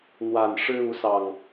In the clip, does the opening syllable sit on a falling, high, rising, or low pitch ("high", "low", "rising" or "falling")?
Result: low